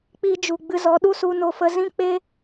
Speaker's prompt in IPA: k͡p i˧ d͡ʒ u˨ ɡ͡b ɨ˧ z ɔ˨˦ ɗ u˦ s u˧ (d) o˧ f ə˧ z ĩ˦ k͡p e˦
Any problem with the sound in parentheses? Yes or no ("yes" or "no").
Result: yes